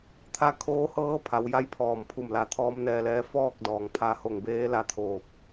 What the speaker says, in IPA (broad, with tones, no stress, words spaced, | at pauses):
t̪ʰa˧kʰoː˧˥hɤː˧˥pʰa˩˧w ja˥˨jpʰɔː˧˩mpʰu˧˩mla˧˩ t̪ʰɔː˧˥mnɛː˧lɛː˧˥ fɔː˥˨k̚dɔː˩ŋpʰa˧ho˧˩ŋ beː˧˥la˧t̪ʰoː˧˩p̚